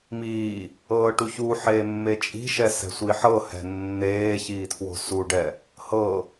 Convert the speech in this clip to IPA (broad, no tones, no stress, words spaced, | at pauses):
miː | ɤːʈuçuħeː mːet͡ʃʼi̤ʃɛ sɛ̤sʷiħɤhɛ̤ nːeː çiːtʰwo̤suɖɛ | hɤ